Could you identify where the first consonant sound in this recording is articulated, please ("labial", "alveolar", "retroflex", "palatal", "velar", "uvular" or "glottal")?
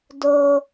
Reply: alveolar